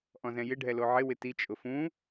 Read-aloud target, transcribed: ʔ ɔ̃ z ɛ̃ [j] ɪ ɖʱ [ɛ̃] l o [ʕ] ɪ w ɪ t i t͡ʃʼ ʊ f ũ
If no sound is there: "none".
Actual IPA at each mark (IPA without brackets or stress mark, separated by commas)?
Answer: j, ɛ, ʕ